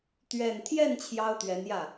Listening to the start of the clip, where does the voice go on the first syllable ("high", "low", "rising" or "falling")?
low